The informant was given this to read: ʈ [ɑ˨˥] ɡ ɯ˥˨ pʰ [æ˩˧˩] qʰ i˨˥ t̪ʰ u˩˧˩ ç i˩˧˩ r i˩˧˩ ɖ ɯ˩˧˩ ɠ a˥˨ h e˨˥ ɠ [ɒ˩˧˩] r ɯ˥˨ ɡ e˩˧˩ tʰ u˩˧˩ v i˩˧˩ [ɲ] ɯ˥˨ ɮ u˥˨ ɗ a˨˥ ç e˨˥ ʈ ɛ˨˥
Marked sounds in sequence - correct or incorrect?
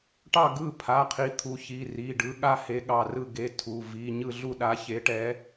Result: incorrect, incorrect, incorrect, correct

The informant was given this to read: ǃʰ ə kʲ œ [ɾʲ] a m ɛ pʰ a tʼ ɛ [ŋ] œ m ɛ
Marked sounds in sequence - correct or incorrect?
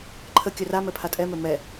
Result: incorrect, incorrect

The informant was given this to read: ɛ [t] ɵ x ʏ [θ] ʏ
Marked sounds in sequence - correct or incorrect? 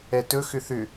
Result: correct, correct

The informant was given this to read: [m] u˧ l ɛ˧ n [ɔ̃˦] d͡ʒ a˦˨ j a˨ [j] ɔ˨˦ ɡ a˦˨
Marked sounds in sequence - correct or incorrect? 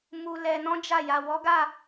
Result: correct, correct, incorrect

